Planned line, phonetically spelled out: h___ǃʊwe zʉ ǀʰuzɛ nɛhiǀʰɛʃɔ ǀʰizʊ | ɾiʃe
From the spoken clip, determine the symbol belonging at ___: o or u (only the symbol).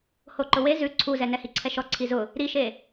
o